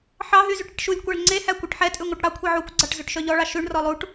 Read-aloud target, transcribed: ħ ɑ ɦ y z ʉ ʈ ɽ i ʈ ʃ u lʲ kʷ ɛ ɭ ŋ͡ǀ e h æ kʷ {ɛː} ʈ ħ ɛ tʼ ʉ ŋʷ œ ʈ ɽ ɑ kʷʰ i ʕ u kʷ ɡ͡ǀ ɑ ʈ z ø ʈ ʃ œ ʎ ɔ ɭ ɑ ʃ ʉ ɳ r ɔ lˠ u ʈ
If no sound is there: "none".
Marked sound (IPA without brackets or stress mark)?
ɛ